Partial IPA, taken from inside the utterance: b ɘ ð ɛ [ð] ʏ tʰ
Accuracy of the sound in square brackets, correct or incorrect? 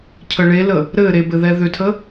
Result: correct